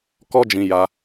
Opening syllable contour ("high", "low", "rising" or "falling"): high